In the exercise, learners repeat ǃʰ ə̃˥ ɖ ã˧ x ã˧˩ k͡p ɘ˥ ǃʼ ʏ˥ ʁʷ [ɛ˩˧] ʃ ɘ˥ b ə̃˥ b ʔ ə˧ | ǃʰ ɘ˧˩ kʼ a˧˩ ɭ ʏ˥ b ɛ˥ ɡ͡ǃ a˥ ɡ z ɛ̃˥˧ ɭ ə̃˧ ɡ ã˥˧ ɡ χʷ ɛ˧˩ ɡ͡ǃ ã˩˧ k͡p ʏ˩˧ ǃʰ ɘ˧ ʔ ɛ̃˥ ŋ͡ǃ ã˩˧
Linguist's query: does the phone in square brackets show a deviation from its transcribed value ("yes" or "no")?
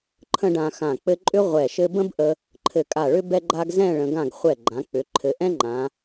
yes